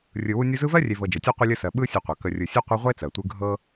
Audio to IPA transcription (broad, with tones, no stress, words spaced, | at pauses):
rʲɯ˨wu˦nʲu˦zɯ˥ vɜ˥rʲe˨ vɤ˨d͡ʒɤ˩tʲɒ˦ qʷɯ˦lʲə˦sɜ˨ ɓɯ˦ sʲɯ˨qʷɤ˩ kə˨rʲɯ˨ sʲe˥qʷɯ˦ʁʷe˥t͡sɜ˩ tʷɯ˦ ɡʱɤ˦